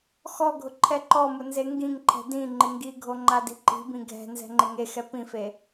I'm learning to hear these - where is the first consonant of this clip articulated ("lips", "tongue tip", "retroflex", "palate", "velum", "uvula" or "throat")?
velum